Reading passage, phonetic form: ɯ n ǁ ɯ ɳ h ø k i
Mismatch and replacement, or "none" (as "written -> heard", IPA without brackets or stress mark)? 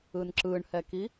ø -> ɛ